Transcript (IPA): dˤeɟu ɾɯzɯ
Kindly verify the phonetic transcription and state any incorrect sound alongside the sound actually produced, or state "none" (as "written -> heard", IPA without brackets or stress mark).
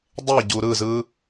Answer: none